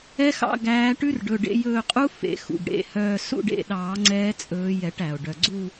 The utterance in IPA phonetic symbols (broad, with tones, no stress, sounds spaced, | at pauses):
ɛ˦˥ x ɑ̰˦˨ ɡ æː˨˦ ʈ ʉ˦˥ r ɖ ɵ˩˧˩ ɖ ḛ˨˦ j ɵː˦˨ qʼ u˦˥ f ḛ˨˩˦ x ṵ˩ ɡ ɽ ḛ˩˧˩ h œː˦˨ s ṵ˦˨ ɖ ḛ˦˨ ɗ ɑː˨˩˦ ŋ͡ǀ ɛː˦˥ t͡sʼ ɵː˨˦ j ɛ˨˩˦ ʈ æ˩ o̯ ɖ œ˩ ɡ͡ǀ u˦˨